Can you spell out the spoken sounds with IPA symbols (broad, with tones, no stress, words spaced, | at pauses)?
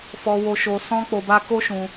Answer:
fɔ˧ wo˧ʃo˧sɔ̃˦ k͡po˧ba˦ ko˦ʃũ˧